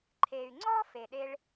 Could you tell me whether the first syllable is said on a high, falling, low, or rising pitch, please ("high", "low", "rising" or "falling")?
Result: low